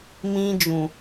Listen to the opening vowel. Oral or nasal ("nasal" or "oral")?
nasal